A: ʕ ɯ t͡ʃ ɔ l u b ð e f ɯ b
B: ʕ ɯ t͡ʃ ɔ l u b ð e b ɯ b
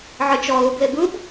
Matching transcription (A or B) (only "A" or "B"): B